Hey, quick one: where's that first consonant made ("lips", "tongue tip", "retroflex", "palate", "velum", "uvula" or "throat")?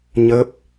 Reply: palate